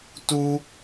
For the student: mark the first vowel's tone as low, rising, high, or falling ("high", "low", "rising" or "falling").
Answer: high